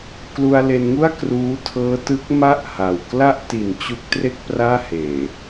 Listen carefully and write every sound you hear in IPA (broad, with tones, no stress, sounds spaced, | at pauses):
k l u˧ a̯ l e˧ n ŋ u˥˩ a̯ k r uː˦˥ tʰ ɤː˦˥ t ɯ˦˥ k̚ m a˥˩ ʔ h a˨˩ w k l a˥˩ ʔ t i˨˩ n t͡ɕ u˦˥ k̚ t r e˥˩ k̚ p r aː˥˩ h eː˨˩